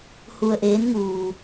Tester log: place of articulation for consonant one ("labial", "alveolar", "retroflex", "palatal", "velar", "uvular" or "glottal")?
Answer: glottal